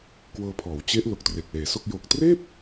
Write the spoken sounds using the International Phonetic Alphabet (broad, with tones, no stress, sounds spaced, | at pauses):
k w ɤː˧ pʰ ɔː˩˦ w t͡ɕ e˦˥ ʔ l o˨˩ k̚ t r e˨˩ k̚ l eː˩˦ s o˥˩ k̚ j o˨˩ k̚ t r eː˥˩ p̚